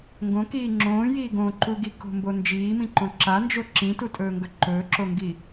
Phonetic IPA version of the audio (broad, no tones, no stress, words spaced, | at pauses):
ŋɡõkiː ŋ͡ǁõːjiː ɡõǃu ɡiko̤mbo nd͡ʒiːmĩǃõ ǁand͡ʒo ǁĩtutʼɵːŋɡɵ ǃɵːǁoŋɡi